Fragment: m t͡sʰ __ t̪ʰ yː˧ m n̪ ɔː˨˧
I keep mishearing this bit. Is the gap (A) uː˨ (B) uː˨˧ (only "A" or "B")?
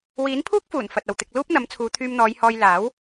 B